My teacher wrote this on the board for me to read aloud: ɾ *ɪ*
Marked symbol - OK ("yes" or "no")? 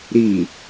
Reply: no